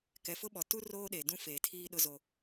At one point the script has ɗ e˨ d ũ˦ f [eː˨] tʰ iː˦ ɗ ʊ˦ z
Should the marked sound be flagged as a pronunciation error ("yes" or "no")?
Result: no